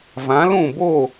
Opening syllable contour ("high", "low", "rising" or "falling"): rising